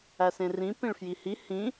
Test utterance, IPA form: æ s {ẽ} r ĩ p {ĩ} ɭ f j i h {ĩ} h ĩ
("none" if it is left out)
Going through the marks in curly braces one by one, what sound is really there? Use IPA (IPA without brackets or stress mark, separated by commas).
ẽ, ĩ, i